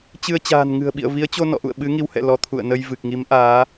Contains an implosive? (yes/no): yes